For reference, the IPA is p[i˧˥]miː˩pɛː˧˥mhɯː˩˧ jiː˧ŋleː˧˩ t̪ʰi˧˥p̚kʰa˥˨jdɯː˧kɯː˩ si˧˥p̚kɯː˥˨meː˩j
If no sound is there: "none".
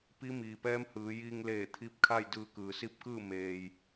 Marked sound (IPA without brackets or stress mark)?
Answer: i˧˥